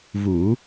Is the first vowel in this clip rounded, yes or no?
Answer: yes